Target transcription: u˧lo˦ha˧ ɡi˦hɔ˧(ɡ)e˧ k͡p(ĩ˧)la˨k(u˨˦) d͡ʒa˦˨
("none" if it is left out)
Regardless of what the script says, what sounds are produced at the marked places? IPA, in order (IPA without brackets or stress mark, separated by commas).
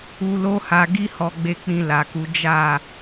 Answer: ɡ͡b, ĩ˧, u˨˦